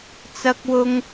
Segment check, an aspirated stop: absent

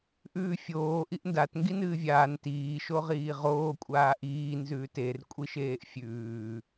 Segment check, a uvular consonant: present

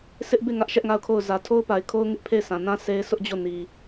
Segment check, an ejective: absent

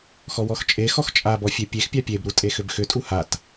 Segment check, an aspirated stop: absent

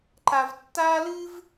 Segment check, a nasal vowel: absent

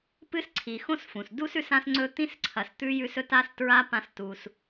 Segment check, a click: present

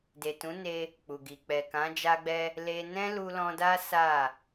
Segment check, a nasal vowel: present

